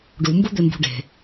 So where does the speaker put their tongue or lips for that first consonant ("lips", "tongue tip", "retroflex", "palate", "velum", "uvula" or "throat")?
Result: retroflex